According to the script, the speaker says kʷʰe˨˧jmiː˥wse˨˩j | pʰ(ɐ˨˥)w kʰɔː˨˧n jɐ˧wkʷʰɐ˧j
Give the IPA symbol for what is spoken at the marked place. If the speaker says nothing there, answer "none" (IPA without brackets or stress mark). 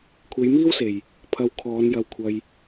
ɐ˧